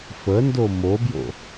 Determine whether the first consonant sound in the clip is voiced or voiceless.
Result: voiceless